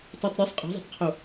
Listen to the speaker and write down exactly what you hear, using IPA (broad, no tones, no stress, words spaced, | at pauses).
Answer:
tɔtˤɾʲosˤ qʼe̤zˤe̤tˤqʰo